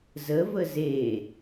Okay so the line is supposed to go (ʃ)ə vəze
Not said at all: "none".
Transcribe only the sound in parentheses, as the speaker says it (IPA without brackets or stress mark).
z